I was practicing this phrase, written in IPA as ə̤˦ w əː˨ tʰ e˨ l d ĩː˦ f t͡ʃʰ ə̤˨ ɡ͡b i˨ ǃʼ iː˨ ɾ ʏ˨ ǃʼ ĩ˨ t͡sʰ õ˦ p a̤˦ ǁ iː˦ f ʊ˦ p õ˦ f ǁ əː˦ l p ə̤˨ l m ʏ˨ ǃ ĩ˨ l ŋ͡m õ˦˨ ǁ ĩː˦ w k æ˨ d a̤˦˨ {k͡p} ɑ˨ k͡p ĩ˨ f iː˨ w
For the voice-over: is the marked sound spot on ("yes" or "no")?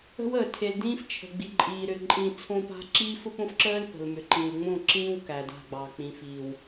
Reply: no